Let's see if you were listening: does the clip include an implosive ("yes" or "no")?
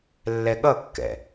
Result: yes